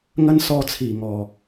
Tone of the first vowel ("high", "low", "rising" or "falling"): high